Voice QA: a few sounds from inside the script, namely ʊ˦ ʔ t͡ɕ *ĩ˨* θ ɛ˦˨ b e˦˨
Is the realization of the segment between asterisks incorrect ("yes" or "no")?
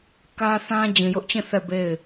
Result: yes